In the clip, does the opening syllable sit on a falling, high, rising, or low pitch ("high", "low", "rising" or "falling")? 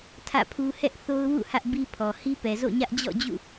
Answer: falling